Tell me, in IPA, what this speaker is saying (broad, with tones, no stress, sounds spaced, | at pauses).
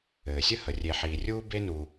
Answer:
ɘː˩ sʲ ə˥ h ə˩ rʲ e˨ ħ iː˨ rʲ uː˥ b e˦ n u˨